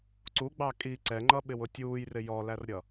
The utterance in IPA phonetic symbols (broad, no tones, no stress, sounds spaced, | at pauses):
ǀ u ɡ͡b ɑ kʼ i ǀ ɛ ŋ͡ǃ ʌ ɓ ɪ w ʊ tʲ uː j r ɪ j ɔ l æ r ɾʲ ʌ